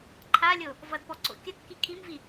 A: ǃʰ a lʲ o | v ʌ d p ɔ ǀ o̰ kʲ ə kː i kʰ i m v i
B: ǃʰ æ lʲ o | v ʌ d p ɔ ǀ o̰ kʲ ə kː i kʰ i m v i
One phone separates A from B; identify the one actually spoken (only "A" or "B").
A